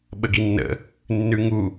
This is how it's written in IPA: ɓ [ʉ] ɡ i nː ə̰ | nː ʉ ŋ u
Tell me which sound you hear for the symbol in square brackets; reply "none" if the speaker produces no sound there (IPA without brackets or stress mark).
ə